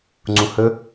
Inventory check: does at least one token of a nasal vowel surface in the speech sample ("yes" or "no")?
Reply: yes